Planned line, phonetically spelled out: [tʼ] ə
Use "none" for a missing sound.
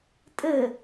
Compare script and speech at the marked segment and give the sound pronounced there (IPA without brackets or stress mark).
tʼ